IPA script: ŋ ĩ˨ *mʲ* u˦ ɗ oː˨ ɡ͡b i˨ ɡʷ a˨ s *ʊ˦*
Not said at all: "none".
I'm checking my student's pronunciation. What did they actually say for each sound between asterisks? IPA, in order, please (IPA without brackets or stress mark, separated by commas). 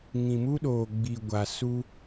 m, u˦